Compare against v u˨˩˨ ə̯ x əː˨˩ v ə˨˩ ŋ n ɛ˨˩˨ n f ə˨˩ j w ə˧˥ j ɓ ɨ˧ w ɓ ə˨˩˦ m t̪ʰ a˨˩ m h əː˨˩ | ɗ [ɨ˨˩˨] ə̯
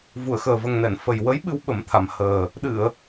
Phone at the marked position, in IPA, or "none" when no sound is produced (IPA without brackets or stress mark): ɨ˨˩˨